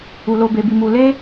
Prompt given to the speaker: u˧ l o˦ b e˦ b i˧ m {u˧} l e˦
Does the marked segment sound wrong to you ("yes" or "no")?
no